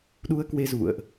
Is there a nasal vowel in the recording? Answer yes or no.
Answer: no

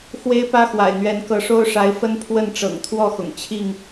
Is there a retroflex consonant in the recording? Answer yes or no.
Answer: yes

